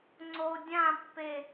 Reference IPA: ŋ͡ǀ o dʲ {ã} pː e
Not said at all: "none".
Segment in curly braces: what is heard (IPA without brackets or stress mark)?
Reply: ã